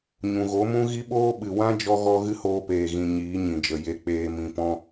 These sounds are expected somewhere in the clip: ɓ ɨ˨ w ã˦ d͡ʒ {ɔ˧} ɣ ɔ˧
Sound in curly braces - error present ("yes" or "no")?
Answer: no